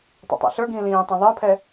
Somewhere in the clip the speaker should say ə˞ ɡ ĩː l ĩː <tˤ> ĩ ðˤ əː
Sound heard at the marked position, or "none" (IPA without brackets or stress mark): tˤ